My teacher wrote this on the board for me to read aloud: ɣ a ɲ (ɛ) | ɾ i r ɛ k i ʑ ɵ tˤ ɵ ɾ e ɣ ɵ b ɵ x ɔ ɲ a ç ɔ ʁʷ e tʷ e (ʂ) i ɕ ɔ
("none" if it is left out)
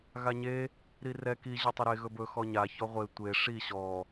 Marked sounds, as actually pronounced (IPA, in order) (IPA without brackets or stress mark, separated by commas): e, ʂ